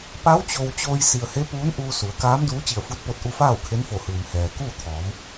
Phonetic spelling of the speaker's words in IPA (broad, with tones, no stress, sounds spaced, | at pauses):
p a˧˥ w t͡ɕ o˧ w t͡ɕ oː˧ j s i˩ ə̯ h e˧˥ p uː˧˥ n ʔ uː˧ s u˩˧ ə̯ k aː˧˥ m d uː˧˥ t͡ɕ i˧˩ ə̯ f u˧˥ t̚ p o˧ t̚ ʔ u˧ f aː˥˨ w kʰ e˧˥ n f o˧˩ h ɯː˩ m h ɛː˩ k uː˥˨ t̪ʰ ɔː˩˧ m